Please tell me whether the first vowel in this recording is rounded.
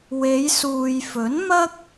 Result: no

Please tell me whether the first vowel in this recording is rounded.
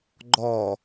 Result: yes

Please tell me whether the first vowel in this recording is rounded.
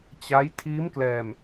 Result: no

